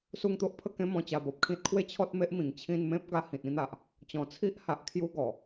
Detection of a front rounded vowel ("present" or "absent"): absent